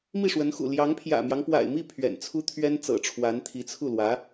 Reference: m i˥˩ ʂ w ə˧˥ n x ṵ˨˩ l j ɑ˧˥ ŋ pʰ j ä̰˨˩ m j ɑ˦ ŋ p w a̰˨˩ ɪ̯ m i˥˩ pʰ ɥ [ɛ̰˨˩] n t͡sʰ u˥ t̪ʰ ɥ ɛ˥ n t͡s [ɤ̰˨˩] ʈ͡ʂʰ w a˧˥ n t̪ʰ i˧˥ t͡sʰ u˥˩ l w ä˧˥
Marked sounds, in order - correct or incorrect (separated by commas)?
correct, correct